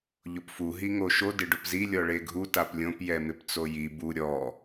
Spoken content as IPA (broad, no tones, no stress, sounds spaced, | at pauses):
ʎ ʊ p f u ɦ i ŋ o ʃ o d ɪ ɖ ʊ p z i lʲ ɔ ɭ e ɡʱ u t a p lʲ õ p j ɛ m ɪ p t͡s o j i b u ɾʲ ɔ